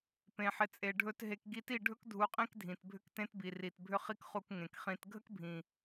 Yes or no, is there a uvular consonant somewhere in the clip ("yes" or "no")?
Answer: yes